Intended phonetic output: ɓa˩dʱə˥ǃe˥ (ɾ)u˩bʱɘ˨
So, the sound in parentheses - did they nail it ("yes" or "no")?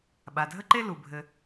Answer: no